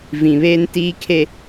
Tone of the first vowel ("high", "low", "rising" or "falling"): low